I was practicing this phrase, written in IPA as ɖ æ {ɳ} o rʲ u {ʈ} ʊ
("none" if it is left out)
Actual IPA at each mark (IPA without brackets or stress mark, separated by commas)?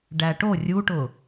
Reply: ʈ, ʈ